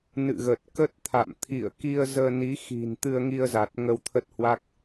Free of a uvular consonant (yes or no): yes